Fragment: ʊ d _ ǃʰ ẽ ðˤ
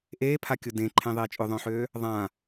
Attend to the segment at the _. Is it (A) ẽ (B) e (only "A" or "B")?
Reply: A